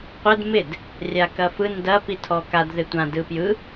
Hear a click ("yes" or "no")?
no